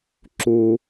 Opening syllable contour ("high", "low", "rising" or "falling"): low